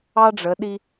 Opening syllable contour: high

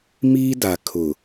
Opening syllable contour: high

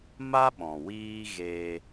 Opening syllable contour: high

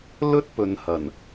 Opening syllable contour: high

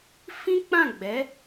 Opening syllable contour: high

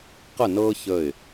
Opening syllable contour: falling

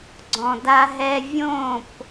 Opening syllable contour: low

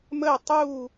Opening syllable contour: falling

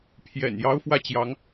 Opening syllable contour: low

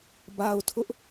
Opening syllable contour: low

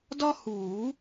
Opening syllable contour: high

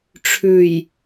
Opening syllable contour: low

